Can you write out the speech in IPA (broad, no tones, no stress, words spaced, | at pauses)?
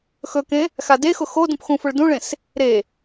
xɵkẽ | xadexʊ xo dũpxũfʊɭ dũɭẽs | ɾe